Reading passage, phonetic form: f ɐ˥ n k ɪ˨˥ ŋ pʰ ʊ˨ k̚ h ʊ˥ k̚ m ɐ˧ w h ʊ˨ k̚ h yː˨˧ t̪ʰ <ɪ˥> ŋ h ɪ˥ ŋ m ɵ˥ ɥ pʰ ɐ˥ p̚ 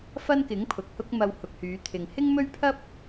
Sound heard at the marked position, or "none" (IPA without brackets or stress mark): ɪ˨